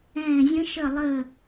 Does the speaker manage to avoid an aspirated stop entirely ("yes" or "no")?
yes